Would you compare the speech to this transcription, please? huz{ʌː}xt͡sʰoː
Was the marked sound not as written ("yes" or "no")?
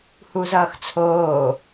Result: no